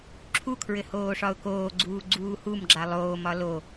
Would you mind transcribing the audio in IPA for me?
ǁʰ u kʰ ɹ ɘ h oː ʂ ɒ ʊ̯ k oː ɡ͡ǀ uː ɡ͡ǀ uː h u m ɡ͡ǁ a lˠ oː m ɒ l o

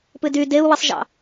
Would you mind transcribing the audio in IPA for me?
p ɨ d y d e u̯ w ɨ sˤ ʒ ɑ̰

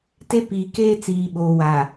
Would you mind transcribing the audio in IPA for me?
t e˦ p iː˨ k eː˦ t͡s iː˨ ɓ oː˨ w a˨

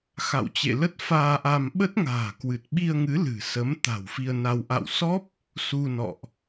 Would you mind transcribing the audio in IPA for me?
x a̰˧˨ w t͡ɕ ḛ˧˨ l ə˦˥ t̚ f aː˧ ʔ a˧ m ɓ ə˦˥ t̚ ŋ a̤ː˨˩ k w ɨ˨˩ t̚ ɓ i˧ ə̯ ŋ ɨ˨˦ l ɨ̤˨˩ s ə˨˦ m t̪ a̤˨˩ w f i˧ ə̯ n a˧ w ʔ a̰˧˨ w s ɔ˦˥ p̚ | s u˧ n ɔ̰˧˨ ʔ

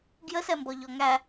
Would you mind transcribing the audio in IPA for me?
ɡ j ə s ɛ m b ɔ ʎ ɔ ŋ æ

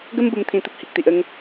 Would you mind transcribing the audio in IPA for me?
ɡ ə˦ m b u˧ m t̪ʰ ĩ˧ t̪ ə˦ p̚ h i˨ k̚ t̪ i˨ ʔ ə˧ ŋ

